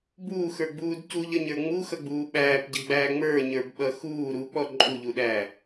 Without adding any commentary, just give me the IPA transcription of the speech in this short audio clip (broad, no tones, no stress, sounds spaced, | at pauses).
b uː x ə˞ ɡ͡b uː d c u ʎ ʌ ɲ ə˞ ŋ͡m u x ʌ ɡ͡b uː ɓ æː p ɟ ʌ ɡ͡b æː ŋ͡m ə˞ ɲ ə˞ b ɓ ʌ x uː ɾ u k͡p ɔ ǃʼ u ʎ u ɗ æ